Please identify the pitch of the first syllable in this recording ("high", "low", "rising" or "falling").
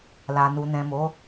low